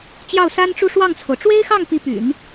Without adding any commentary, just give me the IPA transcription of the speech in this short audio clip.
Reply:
t͡ɕ j ɑ˥˩ ʊ̯ s a˥ n ʈ͡ʂ u˥˧ ʂ w ɑ˥˩ ŋ t͡sʰ o˩ ʊ̯ ʈ͡ʂ w e˥ ɪ̯ x ɑ˥˩ ŋ p i˧˥ p y̰˨˩˦ n

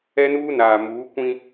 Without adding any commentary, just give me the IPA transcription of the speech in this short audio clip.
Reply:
ɛ˦ n uː˦ n aː˨ m uː˨˦ kʷ ĩ˦

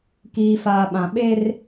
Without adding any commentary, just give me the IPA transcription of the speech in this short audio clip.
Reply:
k iː˨ f aː˨ ɓ ã˨ ɓ e˦ r

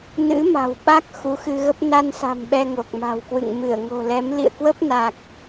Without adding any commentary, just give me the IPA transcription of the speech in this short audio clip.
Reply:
n ɨ̰˧˥ m a̤˨˩ w ɓ a˦˥ k̚ x u˨˦ x ɨ˧ ɣ ə˦˥ p̚ n a˧ n s a̤˨˩ m ɓ ɛ˧ ŋ o˨˩ k̚ m a̤˨˩ w k w ɨ̰˧˨ ŋ m ɨ˧˩ ə̯ ŋ o̤˨˩ l ɛ˨˦ m l ḭ˧˨ ə̯ k w ə˦˥ p̚ n a˨˩ k̚

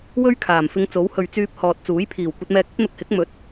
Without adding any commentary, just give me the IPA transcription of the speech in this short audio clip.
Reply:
w ɵ˥ ɥ kʰ aː˨˩ m f ɪ˧ ŋ t͡s o˨˥ w h ɵ˨ ɥ t͡s yː˧ p̚ h ɔː˨ t̚ t͡s uː˨˥ j pʰ iː˨˩ w kʷ ɐ˧ t̚ m ɛː˧ k̚ ɵ˥ t̚ n̪ ʊ˧ k̚ h ɪ˨˥ k̚ m ɵ˨˥ t̚

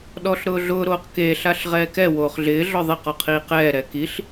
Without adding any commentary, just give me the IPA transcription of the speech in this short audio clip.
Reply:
ɗ ɔ ɬ ɾ ʊː ɮ ʊː ɾ oː q k eː ɬ a ɬ ʁ ɛː k ɛ w oː χ ɮ ɪː ɮ ɔ ðˤ e q ɔ qʰ iː q ɛː ɾ ɛ k i ɬ

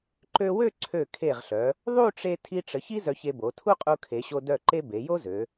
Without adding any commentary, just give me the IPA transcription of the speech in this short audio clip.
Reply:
ǃ ø˧ w ø˥˧ ǀʰ ø˧˩ kʰ e˧˩ ʁ ɬ œ˩˧ | ðˤ u˥˧ ʈ͡ʂ e˧ tʰ i˧ ʈ͡ʂ ə˩˧ ç i˥ z œ˧ ç e˧ b o˩˧ tʰ u˥ qʼ u˧ kʰ e˩˧ ɕ o˧ d œ˧˩ ǃ e˧ b e˩˧ j o˥ z ø˩˧

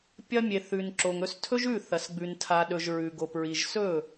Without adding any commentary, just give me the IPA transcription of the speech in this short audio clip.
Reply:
pʲ ɐ˧ mʲ e˨ θ ʉ˨ n ǁ o˨ ŋ ɵ˧ s tʰ ɵ˦ ʒ ʉ˦˨ θ ɐ˨ s ɡ͡b ʉ˨ n tʰ a˨ ɗ ɵ˨ ʒ ɹ ʉ˨ ɡ o˨ p ɹ i˨ ʒ s ɵ˦˨

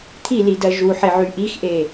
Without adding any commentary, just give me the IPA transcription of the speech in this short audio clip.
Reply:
t̪ʰ i l i d ɜ ʒ u ħ e ʕ y ʔ i x ʔ e

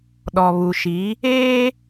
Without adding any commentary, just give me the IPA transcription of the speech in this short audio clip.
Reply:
ɗ ɔ˨ β u˨ ʃ i˨˦ | eː˦

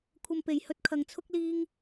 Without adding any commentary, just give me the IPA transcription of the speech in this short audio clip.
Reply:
kʷʰ ɐ˧ m p e˨ j h ɵ˧ t̚ kʰ ɐ˨˧ ŋ t͡sʰ ʊ˥ k̚ l iː˥ ŋ

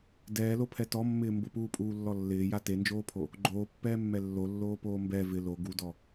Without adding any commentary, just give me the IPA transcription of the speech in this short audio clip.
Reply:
d ɛː l o pʰ ɛ t ɔ mː ɪː m b ʊ p uː pʼ uː lː ɔ lː ɪː j a t e n d͡ʒ oː pʰ o | ɡ͡ǃ oː pː ɛː mː ɛ lː o lː oː p oː m b ɛ v ɪ l o ɡ u d ɔ

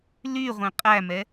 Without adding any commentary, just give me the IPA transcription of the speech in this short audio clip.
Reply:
l y ʁʷ ẽ qʼ æ m ɛ

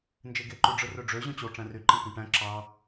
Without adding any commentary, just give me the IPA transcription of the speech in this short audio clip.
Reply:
n d͡ʒ e ɡ e ǃ u ɖ͡ʐ ɯ r ø ɖ͡ʐ ø ʑ õ t͡ɕ o ʈ͡ʂ æ̃ r y ǃ ẽ k ũ ʈ æ̃ ǁ ɑ

